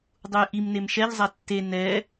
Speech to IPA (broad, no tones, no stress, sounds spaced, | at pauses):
dˤ u j ʔ i m n e m ʃ ɛ ʎ zˤ a tː e n ɛ